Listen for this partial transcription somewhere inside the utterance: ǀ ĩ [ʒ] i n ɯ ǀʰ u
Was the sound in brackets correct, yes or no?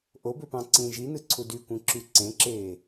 yes